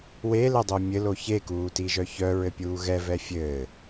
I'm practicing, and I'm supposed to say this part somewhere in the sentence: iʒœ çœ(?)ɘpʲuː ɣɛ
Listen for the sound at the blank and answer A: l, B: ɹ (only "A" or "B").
B